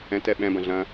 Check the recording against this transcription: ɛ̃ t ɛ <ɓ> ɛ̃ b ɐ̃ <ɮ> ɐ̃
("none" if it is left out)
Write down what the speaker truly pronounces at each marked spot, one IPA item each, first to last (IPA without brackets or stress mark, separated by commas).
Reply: ɓ, ɮ